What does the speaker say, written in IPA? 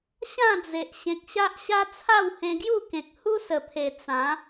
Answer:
ɕ ã˥˧ d͡z e˨ ʔ ɕ ẽ˨ k̚ ɕ a˦ ʔ ɕ a˦ t͡sʰ a˥˧ w h ẽ˧ ɡ j u˥˧ k ẽ˨ k̚ h u˦ s ə˨˩ pʰ e˨˩ t͡s ã˨˦

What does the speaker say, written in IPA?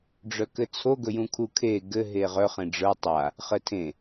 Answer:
ɖ͡ʐ œ k ɘ t͡sʰ o ɡ ɵ j ũ kʰ u kʰ e ɡ ɘ ɦ e ʁ œ χ ẽ ɖ͡ʐ ə˞ tˤ a | χ ɘ tʰ ẽ

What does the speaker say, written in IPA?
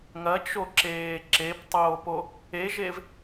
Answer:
ŋ ɐ t͡ʃ o ǁ eː ǁ e p tˤ oː p o | e ʒ e v

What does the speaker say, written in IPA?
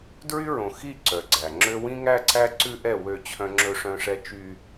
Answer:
d ɹ y˦ ɹ õ˨ x i˦˨ ǀ œ˨ ɡ͡ǀ æ˨ ŋ͡ǁ ø˦ w ĩ˦ ŋ æ˦ ǀ æ˦ ǀ ʉ˦ ʔ ɛ˦˨ w ø˦˨ t͡ɕʰ œ̃˦ ŋ͡ǁ ɵ˦ ʂ œ̃˦ ʂ ɛ˦ t͡ʃ y˦

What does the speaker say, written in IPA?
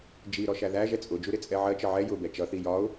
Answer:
d͡ʒ i ɾ ɔ ʃ æ ð æ ʒ ɛ t͡sʼ ʊ d͡ʒ u ɾ ɪ t͡sʼ ɛ ʕ ɜ t͡ʃ ə ʕ ɛ j ʊ b ɛ t͡ʃ ʌ θ i j ɒ ʊ̯

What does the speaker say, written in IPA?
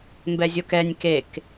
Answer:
m b ɛ zʲ o k ɛ nʲ k e k

